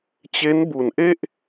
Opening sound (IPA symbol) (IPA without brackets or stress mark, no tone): t͡ɕ